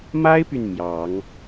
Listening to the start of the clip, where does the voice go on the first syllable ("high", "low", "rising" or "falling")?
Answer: high